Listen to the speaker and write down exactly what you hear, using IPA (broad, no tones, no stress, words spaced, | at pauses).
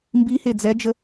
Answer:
mbihe d͡zɛd͡ʒə